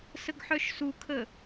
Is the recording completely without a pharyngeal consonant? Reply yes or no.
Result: no